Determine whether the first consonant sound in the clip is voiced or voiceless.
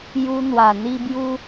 voiced